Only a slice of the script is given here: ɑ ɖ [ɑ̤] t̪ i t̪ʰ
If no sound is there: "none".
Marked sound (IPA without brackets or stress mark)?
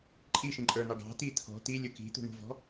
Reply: ɑ̤